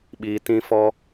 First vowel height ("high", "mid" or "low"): high